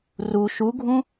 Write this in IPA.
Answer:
r u ʃ u ɡʱ ũ

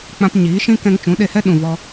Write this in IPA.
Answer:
k͡p ã˧ p ɲ iː˨˦ ʃ ĩ˦ k ɛ̃˧ ŋ t͡ʃ ũ˨˦ ɗ e˧ h ɛ˦ ɗ ũ˨ v ɔ˧

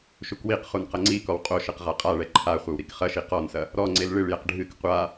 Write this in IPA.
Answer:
ʃ u k w i q χ u n q ɐ ŋ͡ǀ i k ɔ w qʼ o ʃ ɘ q ʁ a qʼ a ɭ ɛ ǃʰ a χʷ ɘ w ɾ i k χ ɐ ʃ i q ɔ n s ɐ | ɾ ɔ ŋ͡ǀ e l ɭ ɨ ɭ j ɛ q ɖʱ ɨ k qʷ a

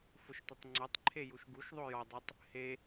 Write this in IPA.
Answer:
f ʊ ʃ tʷ ɐ tˤ ŋ͡ǀ ɔ tˤ ǃʰ e j u ʃ ɡ u ʃ ðˤ o j ɔ dˤ o tˤ | h e

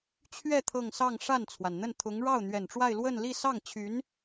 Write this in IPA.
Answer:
t͡ɕʰ ɥ ɛ˥˧ t̪ʰ ɤ˥˧ ŋ s ɑ˥˧ ŋ ʂ a˥˩ n t͡sʰ w a˩ n n̪ ə˥˩ n t̪ʰ ʊ˧˥ ŋ ɻ ɑ˥˩ ʊ̯ n̪ ɥ ɛ˨˩ n ʈ͡ʂ w a˥˧ ɪ̯ l w ə˥˧ n l i˥˧ s ɑ˥˩ ŋ t͡ɕʰ y˧˥ n

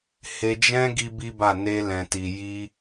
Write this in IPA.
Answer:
h e˧ d͡ʒ ɛ̃˦ ɡ i˦ b i˦ b a˦˨ n e˧ l ɛ̃˨ t i˨ j i˧

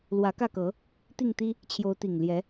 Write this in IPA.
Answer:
l w ä˨˦ k ä˥˨ k ɤ˨˦ | t̪ i˥˨ ŋ t̪ i˦ | t͡ɕʰ j o˨˦ ʊ̯ t̪ i˨˩ ŋ l j ɛ˨˦

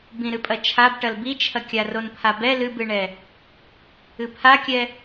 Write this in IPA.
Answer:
b ĩ ɾ ɨ pʼ ɐ t͡ʃʰ a b ʈ ɐ l b i t͡ʃʰ ɐ kʲ a r o n pʰ a b ɛ l ɨ b ɨ ɳ ɛ | ɨ pʰ a kʲ ɛ

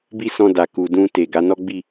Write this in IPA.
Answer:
b i˦ s ɔ̃˧ d a˨ k u˨ d ũ˧ t e˨ ɡ a˨˦ n ɔ˦ ɡ͡b i˦˨

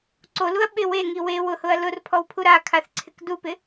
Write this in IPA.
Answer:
ǀ o l u ɐ̯ ɓ ɪ w e ŋ i w e w ʊ h ʊ ɐ̯ l ʊ r pʰ ɔ w pʰ u ɾ a kʰ a θ ǀʰ ɪ k d u p ɪ

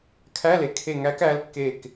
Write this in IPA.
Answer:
kʰ æ˧˥˧ l e˨ kʰ e˦˨ ŋ æ˧˥ k æ˧˥ l kː e˦˨ k

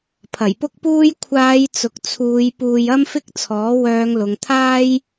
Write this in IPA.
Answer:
pʰ ɐ˨˩ j p ʊ˥ k̚ p uː˥ j kʷʰ aː˨˧ j t͡s ʊ˨ k̚ t͡sʰ uː˨˧ j p uː˧ j ɐ˥ m f ɪ˥ k̚ t͡sʰ ɔː˨˥ w œː˨˧ ŋ l ʊ˨ ŋ t̪ʰ aː˥ j

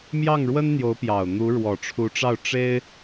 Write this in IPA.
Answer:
m j ɑ˥˩ ŋ ɻ w ə˥ n n̪ j o˧˥ ʊ̯ p j ɑ˨˩ ʊ̯ n̪ u˧˥ ɻ w ɔ˨˩ ʈ͡ʂʰ u˧˥ ʈ͡ʂ ɑ˥˩ ʊ̯ ʈ͡ʂ e˥ ɪ̯

